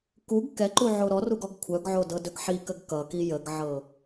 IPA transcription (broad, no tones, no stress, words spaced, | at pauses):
kuɡ kɛǃu ʕoɾɔruɡ ɔɡkʷʰœɡʕo dɤdɵɡħikəɡ kʌki jəɡʕɤ